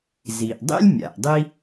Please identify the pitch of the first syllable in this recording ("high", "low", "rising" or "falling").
low